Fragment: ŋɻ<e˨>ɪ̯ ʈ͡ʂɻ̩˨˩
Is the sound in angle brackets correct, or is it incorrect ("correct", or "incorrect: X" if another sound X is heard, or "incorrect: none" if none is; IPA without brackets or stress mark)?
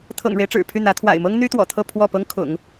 incorrect: e˦